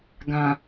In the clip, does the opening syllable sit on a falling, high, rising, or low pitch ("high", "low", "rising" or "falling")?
low